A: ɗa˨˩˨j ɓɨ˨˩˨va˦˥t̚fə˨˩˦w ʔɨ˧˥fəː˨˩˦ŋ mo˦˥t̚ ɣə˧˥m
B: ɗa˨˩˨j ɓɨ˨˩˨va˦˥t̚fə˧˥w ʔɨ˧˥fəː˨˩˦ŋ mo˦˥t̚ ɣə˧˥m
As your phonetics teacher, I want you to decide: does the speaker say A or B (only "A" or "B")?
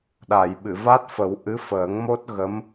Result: A